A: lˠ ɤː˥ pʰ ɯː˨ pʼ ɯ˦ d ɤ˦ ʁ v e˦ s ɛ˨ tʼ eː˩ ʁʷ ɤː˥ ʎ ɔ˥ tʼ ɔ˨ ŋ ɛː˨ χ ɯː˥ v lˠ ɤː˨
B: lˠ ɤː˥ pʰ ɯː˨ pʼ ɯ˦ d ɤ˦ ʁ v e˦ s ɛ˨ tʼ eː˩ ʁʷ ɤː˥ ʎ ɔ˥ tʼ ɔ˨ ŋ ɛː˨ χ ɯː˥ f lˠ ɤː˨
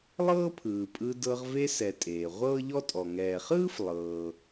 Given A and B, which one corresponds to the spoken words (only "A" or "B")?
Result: B